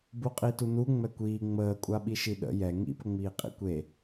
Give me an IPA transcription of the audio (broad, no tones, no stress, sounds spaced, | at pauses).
b u qʼ i t u n u ŋ͡m ɛ kʷ iː ŋ͡m əː kʷʼ a ɓ i ʃ i ɗ ə̰ j ɛ ŋ ḭ p ə ŋ͡m iː qʼ ḭ kʷ e